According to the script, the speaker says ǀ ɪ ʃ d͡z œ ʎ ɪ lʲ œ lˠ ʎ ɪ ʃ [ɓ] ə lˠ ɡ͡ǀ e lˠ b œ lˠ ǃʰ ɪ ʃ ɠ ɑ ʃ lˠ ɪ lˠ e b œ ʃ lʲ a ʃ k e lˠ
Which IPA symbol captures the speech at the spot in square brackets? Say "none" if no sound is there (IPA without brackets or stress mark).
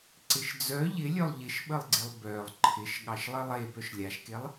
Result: ɓ